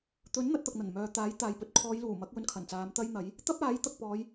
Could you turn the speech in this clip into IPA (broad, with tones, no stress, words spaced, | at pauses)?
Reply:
t̪ɵ˨˥n n̪ɐ˧t̚t̪ɐ˨k̚ n̪ɐ˨˩nmœː˨ t̪aː˨˥jt̪aː˨jpɵ˨t̚ kʰɔː˨˧jluː˨˩mɐ˨˥k̚ wɵ˧nkʰɐ˨˩nt͡saː˨˧m t̪ɐ˥jn̪ɐ˨˥j | t̪ɐ˥p̚aː˨˥j t̪ɐ˨k̚pɔː˨˧j